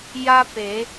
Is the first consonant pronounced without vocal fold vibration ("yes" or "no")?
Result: no